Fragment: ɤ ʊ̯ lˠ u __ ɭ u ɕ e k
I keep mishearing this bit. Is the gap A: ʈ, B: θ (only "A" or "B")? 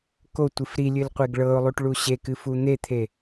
A